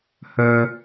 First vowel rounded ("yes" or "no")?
yes